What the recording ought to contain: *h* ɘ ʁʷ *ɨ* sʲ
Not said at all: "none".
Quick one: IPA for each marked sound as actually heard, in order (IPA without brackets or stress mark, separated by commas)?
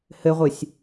h, ɨ